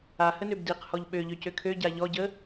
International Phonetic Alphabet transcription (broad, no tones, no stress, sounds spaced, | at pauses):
a h ə n ø b d i q h ɔ ʎ ɓ ø ʎ ø c ø kʰ ø ɟ a ʎ ɔ ɟ ə